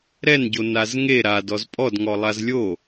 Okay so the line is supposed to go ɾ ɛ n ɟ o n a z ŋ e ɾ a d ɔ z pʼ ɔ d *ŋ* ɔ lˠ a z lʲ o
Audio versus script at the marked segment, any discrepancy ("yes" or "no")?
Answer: no